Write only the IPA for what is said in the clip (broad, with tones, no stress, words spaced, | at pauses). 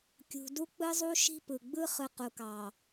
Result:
kʲṳ˨ du˦k͡pɯ˦zˤu˦ ʃi̤˦pɯ˨ ɡ͡bɯ˦χɯ˨ qu˨kɑ˨